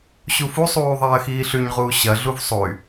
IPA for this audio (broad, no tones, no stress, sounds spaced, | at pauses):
ɕ u f u sˤ uː ðˤ ɐː x iː ɬ ʉ ɲ ʁ uː ɕ ɐ ɮ u v sˤ o y̯